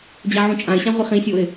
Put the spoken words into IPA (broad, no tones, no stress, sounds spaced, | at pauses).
d͡ʑ a ʕ ũ t͡ʃʼ ã ɪ̯ ɕ ã ʁʷ ɪ χ ĩ sʲ o ɪ̯